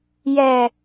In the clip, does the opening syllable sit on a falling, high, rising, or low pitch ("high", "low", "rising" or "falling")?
low